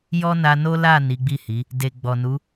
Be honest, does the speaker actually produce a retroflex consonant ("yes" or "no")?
no